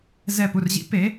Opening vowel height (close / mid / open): mid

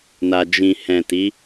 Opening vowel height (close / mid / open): open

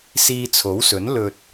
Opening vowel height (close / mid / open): close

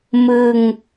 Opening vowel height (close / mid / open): close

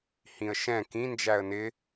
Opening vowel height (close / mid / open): close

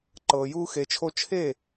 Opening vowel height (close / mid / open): mid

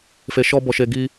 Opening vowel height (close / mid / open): mid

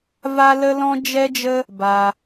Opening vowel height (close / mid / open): open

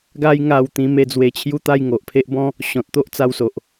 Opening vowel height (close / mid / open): open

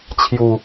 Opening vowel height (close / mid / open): close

